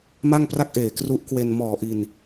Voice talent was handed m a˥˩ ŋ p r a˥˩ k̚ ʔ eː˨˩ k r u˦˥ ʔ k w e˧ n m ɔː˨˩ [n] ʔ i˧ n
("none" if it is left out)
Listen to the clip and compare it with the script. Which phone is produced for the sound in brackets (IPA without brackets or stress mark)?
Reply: none